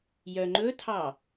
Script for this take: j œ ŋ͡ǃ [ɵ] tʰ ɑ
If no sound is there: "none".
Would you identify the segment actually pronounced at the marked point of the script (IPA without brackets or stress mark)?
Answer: ɵ